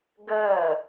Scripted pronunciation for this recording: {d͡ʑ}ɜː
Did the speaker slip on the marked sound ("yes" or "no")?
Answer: yes